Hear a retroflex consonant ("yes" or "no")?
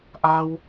no